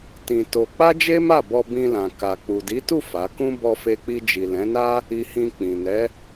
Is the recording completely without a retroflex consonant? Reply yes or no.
yes